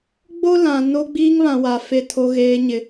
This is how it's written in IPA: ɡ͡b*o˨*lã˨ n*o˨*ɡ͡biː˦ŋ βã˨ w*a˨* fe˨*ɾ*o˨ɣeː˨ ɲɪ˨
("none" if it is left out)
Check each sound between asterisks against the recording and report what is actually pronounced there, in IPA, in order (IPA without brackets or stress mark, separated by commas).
o˦, o˦, a˨, tʰ